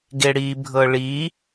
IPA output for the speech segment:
ɡ e ɽ i bʱ ɤ ɭ i

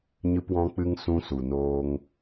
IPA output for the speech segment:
ɲ ɨ˧ p w ɔ̃˧ k͡p ɨ˧ ŋ s ũ˧ s u˨ n oː˧ ŋ

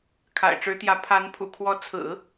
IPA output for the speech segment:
kʰ a̰˨˩ ɪ̯ ʈ͡ʂ ɻ̩˧˥ t̪ j ä˧˥ pʰ a˧˥ n pʰ ṵ˨˩ kʰ w ɔ˧˥ t͡sʰ ɹ̩˨˩˦

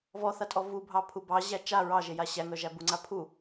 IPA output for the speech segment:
v ɔ θ a tʼ ɔ v u bʱ ɑ pʰ u b ɑ ʑ æ t͡ʃ a ɹ ɑ ʒ e j a ɕ æ ŋ œ ʒ æ b u ŋ͡ǀ a pʰ u

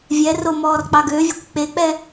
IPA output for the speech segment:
vʲ ɛ r o m ɔː r k͡p ɑ ɡ ø vʲ ɛ kʷ k͡p e k͡p ɛ

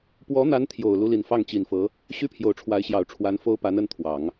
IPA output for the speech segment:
p w ɔ˧˥ n̪ a˧˥ n t̪ʰ j o˨˩ ʊ̯ l u˧˥ l i˨˩ n f ɑ˥˩ ŋ t͡ɕ i˨˩ n f ɤ˧˥ | ɕ y˥ pʰ j o˨˩ ʊ̯ ʈ͡ʂʰ w a˧˥ ɪ̯ ɕ j ɑ˨˩ ʊ̯ ʈ͡ʂʰ w a˧˥ n f o˥ ʊ̯ p a˧˥ n ə˧˥ n t̪ʰ w ɑ˨˩˦ ŋ

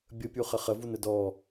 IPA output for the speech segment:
bʲ ə pʲ u χ ə χ ə v u n ə d ɔ

